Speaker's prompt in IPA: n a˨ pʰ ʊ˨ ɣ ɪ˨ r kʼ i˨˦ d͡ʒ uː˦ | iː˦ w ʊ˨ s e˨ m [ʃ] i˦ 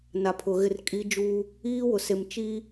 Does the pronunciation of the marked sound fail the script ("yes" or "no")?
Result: yes